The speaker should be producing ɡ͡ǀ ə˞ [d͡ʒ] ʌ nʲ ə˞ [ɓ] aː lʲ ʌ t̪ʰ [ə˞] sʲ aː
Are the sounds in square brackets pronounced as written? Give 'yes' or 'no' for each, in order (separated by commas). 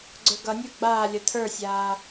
no, no, yes